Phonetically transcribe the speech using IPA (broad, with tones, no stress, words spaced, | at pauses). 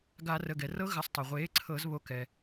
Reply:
ɡa˧˩˧ rə˩˧˩ɡɛ˩rɤ˧˥ ɣə˩˥sˤtˤə˩ʁʷeː˩˥ ǀʰɤ˧˩˧zβo˩˥kɛ˩